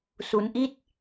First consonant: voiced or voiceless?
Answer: voiceless